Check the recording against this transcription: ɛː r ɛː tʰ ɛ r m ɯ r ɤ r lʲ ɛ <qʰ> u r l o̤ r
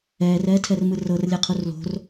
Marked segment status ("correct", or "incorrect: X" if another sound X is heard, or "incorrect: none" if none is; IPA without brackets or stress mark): correct